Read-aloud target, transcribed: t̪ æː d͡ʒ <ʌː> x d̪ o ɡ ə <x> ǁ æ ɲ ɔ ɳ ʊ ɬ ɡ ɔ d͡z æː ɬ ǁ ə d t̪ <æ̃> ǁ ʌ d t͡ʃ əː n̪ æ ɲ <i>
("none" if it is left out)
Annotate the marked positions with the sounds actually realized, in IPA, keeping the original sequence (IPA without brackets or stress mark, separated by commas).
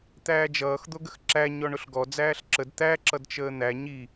ʌː, x, æ, i